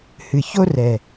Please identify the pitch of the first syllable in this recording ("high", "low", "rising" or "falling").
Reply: low